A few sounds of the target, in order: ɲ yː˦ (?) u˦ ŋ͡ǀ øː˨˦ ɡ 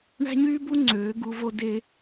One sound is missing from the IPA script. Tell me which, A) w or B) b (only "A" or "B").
B